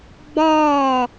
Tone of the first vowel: falling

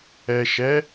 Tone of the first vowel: low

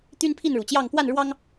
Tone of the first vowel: high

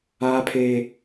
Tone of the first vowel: high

